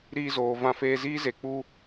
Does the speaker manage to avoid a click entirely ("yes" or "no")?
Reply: yes